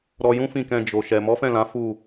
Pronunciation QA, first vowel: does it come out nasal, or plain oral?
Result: oral